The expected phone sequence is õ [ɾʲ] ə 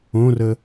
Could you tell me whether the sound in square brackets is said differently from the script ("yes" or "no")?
yes